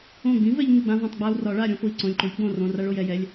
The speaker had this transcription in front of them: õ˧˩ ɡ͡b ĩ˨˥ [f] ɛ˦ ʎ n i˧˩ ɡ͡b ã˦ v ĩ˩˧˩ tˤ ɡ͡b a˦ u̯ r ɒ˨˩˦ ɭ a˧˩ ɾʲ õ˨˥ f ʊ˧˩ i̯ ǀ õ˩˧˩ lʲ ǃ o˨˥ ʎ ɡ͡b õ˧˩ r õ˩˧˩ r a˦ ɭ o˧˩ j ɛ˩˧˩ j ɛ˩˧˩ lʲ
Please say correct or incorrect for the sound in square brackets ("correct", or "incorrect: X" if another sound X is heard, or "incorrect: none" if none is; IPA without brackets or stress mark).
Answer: incorrect: v